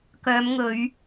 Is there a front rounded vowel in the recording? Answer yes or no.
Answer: yes